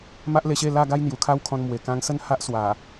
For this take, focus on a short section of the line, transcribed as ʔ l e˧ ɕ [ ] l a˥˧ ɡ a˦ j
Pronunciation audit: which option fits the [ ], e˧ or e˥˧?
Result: e˥˧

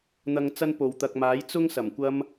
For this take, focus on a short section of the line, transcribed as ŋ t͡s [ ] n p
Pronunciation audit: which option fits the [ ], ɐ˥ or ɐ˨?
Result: ɐ˥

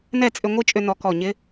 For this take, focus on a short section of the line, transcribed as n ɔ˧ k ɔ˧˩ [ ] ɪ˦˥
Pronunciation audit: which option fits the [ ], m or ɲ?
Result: ɲ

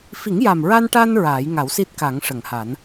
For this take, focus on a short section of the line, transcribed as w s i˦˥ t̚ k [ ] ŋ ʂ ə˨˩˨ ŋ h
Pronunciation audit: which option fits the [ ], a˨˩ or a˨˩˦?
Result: a˨˩˦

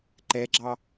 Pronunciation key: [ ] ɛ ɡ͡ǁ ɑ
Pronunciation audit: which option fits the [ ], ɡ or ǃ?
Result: ǃ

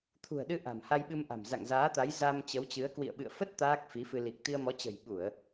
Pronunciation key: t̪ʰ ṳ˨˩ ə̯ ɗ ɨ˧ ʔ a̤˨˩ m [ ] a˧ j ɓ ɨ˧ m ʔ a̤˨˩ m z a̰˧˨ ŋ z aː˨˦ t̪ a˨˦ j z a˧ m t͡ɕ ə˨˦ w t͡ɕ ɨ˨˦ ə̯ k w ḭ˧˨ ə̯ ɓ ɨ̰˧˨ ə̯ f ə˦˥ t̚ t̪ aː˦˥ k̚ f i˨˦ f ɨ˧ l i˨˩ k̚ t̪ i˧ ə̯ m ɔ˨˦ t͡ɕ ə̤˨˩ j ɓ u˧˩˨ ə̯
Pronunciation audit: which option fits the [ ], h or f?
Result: h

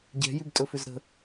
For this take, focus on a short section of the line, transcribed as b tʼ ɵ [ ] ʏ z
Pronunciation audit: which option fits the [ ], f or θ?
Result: f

